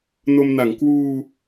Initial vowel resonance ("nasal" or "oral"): oral